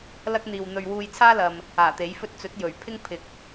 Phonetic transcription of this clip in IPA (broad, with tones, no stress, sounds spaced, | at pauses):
l ɐ˥ k̚ n̪ iː˨ w n̪ ɵ˨ ɥ w uː˧ j t͡sʰ aː˥ l ɐ˨ m | aː˨˩ t̪ e˨˥ j f ɵ˥ t̚ t͡s ɵ˨˥ t̚ j ɵ˨˩ ɥ pʰ ɪ˥ ŋ pʰ ɪ˨˥ k̚